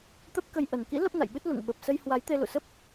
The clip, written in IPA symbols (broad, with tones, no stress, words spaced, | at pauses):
t̪ə˦˥p̚kə˧j ʔə˨˩nkḭ˧˥ lə˦˥p̚na̰˧˨jɓɨ˦˥t̚ lṵ˧˨ŋ ɓə˨˩p̚sə˧jhwa˨˦j t̪e˧lṵ˧˨sə˦˥p̚